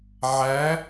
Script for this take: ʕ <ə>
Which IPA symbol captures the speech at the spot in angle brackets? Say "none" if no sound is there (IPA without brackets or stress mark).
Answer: æ